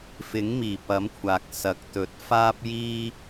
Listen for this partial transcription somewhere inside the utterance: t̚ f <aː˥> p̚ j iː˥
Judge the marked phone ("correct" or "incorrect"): correct